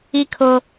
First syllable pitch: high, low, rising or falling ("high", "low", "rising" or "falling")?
high